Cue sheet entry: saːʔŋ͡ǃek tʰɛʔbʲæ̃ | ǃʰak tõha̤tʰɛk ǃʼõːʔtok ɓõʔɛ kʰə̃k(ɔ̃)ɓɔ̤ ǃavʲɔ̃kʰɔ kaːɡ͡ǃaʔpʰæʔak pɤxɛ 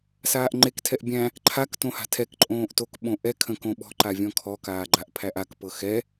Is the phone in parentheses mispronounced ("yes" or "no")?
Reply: yes